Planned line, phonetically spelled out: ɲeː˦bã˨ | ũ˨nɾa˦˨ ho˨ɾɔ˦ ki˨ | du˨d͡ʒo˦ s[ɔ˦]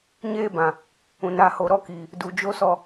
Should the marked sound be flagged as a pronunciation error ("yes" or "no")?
no